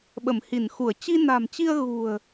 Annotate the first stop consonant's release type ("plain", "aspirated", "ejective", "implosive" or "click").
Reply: implosive